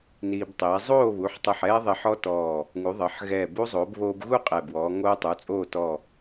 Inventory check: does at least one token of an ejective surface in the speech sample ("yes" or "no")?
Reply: yes